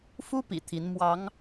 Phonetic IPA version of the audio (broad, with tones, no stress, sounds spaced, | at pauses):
f u˥ p ḭ˨˩ t̪ʰ i˧˥ n m w ɑ˧˥ ŋ